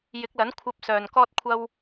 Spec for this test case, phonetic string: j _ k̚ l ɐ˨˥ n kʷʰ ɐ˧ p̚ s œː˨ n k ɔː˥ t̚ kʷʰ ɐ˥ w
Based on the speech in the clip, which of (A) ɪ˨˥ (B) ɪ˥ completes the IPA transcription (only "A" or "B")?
A